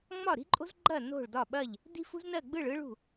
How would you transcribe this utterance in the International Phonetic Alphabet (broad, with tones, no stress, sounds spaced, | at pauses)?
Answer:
ŋ͡m ɒ˥˨ ɾ i̤˥ ǃʼ o̤˥ z ɡ͡ǃ ɐ˥˨ n o̤˥˨ ɭ d ɒ˥˨ ɓ ɐ˥˨ ʎ | d i̤˥ f ṳ˥ z n ɜ˥˨ ɡ͡b ɯ˥˨ ɭ ɯ˥ ɭ ṳ˥˨